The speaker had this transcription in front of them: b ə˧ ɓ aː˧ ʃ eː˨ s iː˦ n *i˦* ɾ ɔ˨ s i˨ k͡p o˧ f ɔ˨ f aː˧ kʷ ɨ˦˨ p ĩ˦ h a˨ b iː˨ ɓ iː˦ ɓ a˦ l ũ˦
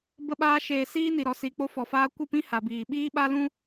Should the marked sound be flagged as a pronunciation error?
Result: yes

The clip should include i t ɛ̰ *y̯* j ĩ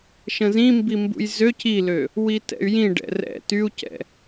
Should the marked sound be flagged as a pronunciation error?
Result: no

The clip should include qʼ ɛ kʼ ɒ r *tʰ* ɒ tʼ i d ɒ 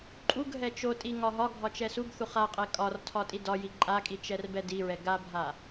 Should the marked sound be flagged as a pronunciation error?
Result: no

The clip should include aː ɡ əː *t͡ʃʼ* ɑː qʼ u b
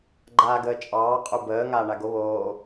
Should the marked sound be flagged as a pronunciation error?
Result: no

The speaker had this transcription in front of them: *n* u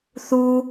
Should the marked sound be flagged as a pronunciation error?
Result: yes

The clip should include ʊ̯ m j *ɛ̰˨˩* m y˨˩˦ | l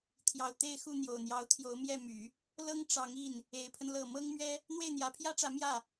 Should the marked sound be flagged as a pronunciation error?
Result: yes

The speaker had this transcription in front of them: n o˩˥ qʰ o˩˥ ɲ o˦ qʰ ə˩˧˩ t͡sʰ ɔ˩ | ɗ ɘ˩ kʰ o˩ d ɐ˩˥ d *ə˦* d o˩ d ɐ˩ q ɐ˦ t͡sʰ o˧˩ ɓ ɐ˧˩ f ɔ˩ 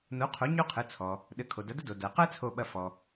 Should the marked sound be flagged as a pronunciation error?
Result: no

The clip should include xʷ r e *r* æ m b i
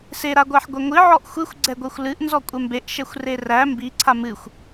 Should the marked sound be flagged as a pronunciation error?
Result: no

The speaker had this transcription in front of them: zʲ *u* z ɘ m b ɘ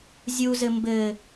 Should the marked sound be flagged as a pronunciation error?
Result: no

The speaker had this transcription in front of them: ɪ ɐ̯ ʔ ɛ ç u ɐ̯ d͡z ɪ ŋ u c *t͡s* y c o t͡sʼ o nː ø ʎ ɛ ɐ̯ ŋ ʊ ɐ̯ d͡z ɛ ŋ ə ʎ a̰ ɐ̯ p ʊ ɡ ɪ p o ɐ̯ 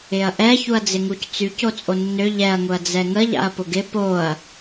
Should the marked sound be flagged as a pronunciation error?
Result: no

